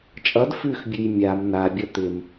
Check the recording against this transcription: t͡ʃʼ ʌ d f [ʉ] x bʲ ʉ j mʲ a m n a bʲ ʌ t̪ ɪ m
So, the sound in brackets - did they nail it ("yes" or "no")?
yes